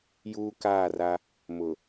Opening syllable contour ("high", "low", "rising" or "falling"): high